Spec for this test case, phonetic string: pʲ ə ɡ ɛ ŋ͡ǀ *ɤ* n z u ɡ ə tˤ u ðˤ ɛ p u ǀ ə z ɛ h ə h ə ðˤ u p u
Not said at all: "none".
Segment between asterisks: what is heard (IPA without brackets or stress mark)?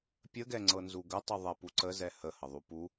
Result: ɤ